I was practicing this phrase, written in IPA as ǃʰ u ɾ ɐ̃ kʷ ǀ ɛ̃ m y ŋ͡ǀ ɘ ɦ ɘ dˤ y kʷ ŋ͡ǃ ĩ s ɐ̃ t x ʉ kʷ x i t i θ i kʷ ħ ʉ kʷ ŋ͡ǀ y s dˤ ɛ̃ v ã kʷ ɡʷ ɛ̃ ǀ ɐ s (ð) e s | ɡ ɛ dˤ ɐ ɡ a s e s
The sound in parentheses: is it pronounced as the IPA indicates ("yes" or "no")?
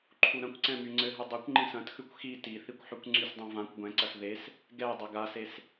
yes